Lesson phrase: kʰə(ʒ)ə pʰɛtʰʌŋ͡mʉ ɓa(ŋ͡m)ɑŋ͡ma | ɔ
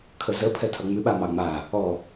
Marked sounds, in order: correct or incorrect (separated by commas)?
incorrect, incorrect